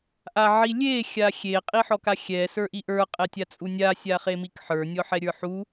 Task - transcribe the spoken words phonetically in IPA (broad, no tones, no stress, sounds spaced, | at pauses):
ʔ a ʕ i lʲ e xʲ a xʲ e qʼ i ħ ɔ k a xʲ ɛ s ə˞ ʔ i ʔ ə˞ qʼ ɛ tʲ a t͡sʼ u nʲ a sʲ a χ e m i k ħ ə˞ nʲ ɔ ħ ɛ ɾʲ ə˞ ħ u